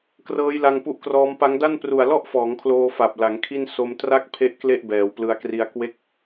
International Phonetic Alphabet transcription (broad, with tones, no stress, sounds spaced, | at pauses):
k r ɤː˦˥ j l a˧ ŋ p u˦˥ ʔ k r ɔː˦˥ m p a˦˥ ŋ d a˥˩ n p r u˨˩ a̯ l ɔ˥˩ ʔ f ɔː˩˦ ŋ kʰ l oː˧ f a˨˩ p̚ l a˩˦ ŋ kʰ i˥˩ n s o˧ m t r a˥˩ k̚ pʰ e˦˥ ʔ k l e˥˩ ʔ b ɛː˩˦ w p l ɯ˧ a̯ k r i˧ a̯ k w e˦˥ k̚